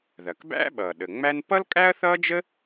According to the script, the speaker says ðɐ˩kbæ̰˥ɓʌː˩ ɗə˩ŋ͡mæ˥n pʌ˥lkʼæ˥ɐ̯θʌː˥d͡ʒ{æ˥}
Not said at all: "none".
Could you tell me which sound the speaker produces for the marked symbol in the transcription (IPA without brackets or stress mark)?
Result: ə˥